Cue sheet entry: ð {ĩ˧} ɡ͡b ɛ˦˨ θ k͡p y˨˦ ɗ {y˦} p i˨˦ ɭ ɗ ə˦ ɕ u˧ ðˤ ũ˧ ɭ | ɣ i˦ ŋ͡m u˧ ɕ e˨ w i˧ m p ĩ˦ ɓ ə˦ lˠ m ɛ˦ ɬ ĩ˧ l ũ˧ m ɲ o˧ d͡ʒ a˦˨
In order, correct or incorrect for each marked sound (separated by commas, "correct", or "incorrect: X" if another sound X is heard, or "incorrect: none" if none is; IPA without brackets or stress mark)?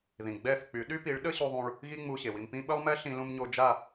incorrect: ĩ˨, correct